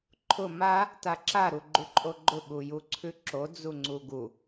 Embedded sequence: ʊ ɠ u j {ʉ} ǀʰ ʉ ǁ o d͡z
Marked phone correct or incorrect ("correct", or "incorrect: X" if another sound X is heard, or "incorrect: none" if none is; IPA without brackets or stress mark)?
incorrect: u